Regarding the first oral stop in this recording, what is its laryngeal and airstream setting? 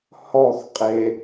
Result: ejective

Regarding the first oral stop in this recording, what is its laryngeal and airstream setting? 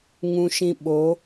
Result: implosive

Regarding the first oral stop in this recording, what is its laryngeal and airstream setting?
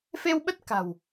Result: implosive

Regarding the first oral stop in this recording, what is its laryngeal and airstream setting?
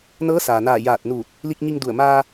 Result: plain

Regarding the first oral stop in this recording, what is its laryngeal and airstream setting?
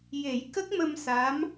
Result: plain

